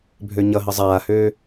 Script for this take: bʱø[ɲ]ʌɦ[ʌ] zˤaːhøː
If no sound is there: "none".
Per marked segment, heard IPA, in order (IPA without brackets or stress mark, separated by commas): ɲ, ə